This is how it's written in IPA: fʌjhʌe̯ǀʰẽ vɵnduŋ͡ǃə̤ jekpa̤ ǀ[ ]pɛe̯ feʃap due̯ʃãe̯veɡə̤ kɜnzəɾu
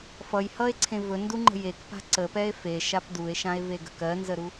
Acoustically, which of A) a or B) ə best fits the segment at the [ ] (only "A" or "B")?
B